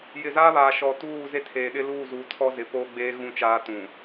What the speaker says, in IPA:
j ɪ˨ z aː˦ β aː˨ ʃ ɔ˨ t uː˦˨ z e˦ tʰ eː˨ ɗ ɪ˦ l uː˦˨ z uː˨ tʰ ɔ˦ z ɪ˨ p oː˦ ɡ͡b eː˦ ɣ ũ˦ t͡ʃ aː˦ t ũ˨

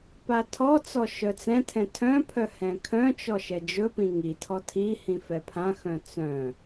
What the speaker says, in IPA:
p a tʰ ɔ t͡s ɔ ʃ œ t͡s ɛ̃ tʰ ɛ̃ tʰ œ̃ pʰ œ h ɛ̃ kʰ œ̃ t͡ʃ ɔ ʃ ɛ d͡ʒ ɵ p ĩ ŋ i tʰ ɔ tʰ i h ĩ f ɛ pʰ ã x œ̃ t͡s œ̃

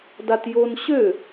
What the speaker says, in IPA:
d a t j o n ɕ ø

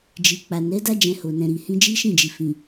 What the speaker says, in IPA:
d͡ʒ i˨ k͡p a˨ n ɛ˨˦ d a˦ d͡ʒ ɛ̃˧ h o˨ n ɛ̃˨ ɾ i˨ h ĩ˧ d͡ʒ i˦ ʃ ĩ˦˨ d͡ʒ i˨ f ĩ˨

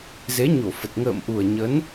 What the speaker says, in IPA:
z e˨˦ ɲ o˧˩ f ə˨˩ t̚ ŋ ə̰ː˧˨ m ʔ u˨˩ ə̯ ɲ ə˨˦ n

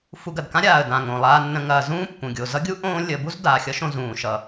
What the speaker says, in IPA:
f u˨ ɡ ɐ˩ d k ã˥ ɾʲ aː˩ ə̯ d ã˩ ŋ õ˩ lˠ aː˨ nː ə̃˨ ŋ ɐː˩ z ũː˥ pː ũ˩ ɡʲ o˨ z ʌ˥ ɡʲ u˥ ʔ õː˦ lʲ ə˨ b u˦ z d aː˨ xʲ ʌ˥ ʃ õ˦ z ũː˨ ʃ ʌ˨

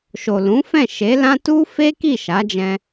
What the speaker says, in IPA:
ʃ o˨ l ũ˨˦ f ɛ̃˦˨ ʃ e˨˦ l ã˦ t u˦ f e˦ k i˦˨ ʃ a˨˦ d͡ʒ ɛ̃˧

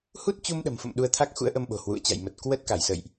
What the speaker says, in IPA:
h u˦˥ t̚ t͡ɕ u˧ m ɗ ə̤˨˩ m f ə̰˧˨ m ɗ u˧ ə̯ t̪ʰ a˦˥ k̚ x ṵ˧˥ ə̯ ʔ ə˧ m ɓ o̤˨˩ h w ṵ˧˨ ə̯ t͡ɕ a̰˧˨ j m ə˨˩ t̚ k w ə˦˥ t̚ k a˧˩ j s ə̰˧˨ j ʔ

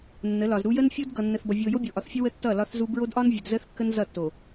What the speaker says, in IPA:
nː ə˨˦ l ɒ˨ z ɾ u˦ j ə˦ n fʲ o˦ d ɡ ʌ˨ nː ə˨ θ b ʌ˨ vʲ o˨ j o˦ bʲ o˨ ʔ ɒ˨ θ fʲ ʌ˦ w ə˦ tː ʌ˦˨ l ɒ˦ θ z u˦ b ɹ o˦ d ʔ ɒ˦ n vʲ ə˨ d z ə˦ θ kː ə˦ n z ʌ˦˨ tː o˨

